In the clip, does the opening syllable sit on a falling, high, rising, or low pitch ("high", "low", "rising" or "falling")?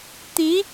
rising